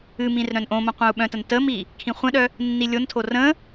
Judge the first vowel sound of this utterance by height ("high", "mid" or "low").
high